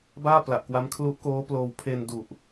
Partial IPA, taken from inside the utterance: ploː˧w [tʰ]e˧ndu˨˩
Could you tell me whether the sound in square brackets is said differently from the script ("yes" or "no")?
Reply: yes